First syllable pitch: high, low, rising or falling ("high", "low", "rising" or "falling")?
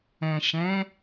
low